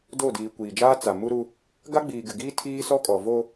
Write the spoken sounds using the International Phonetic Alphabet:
do˦˨diː˨kʷiː˨d͡ʒaː˦ t͡sa˨ mu˦ɾu˦ | ɡa˦ɡ͡biː˨ɡɪ˨ ɡiː˦ tʰiː˦sɔ˦kʼɔ˨ vo˦

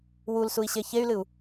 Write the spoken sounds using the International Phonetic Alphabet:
wulsui̯ɕe çey̯lɨu̯

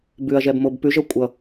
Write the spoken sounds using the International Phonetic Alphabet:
bʉɐ̯ʒɛbmob pʉʒʌ kʷʼʌ

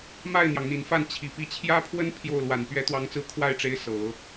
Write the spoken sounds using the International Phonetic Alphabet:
ma˥˩ɪ̯n̪jɑ˩ŋ n̪i˨˩nfa˥˩n t͡ɕʰi˨˩ pi˧˥t͡ɕʰjä˥pʰwə˥n pʰjo˥˩ʊ̯ lwa˨˩npɥɛ˧˥t̪wɑ˧˥ŋt͡sɹ̩˧˥ kʰwa˥˩ɪ̯ʈ͡ʂe˧˥ɪ̯ sɤ˨˩˦

